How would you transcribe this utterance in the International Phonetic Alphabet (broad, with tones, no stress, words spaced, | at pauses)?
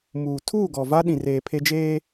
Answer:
muː˨ tʰuː˦˨ɡɔ˨ va˦ɗĩ˨reː˨ pʰe˦ d͡ʒeː˦